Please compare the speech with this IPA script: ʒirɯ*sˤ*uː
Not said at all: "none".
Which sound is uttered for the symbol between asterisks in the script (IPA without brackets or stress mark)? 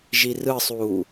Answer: sˤ